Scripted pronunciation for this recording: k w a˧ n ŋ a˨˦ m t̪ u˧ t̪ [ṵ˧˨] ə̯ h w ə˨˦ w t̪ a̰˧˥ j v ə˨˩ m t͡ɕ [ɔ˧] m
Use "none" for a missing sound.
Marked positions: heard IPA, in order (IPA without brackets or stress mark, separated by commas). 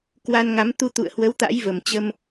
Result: ṵ˧˨, ə˧